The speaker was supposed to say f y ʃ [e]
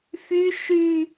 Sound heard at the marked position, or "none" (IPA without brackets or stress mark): y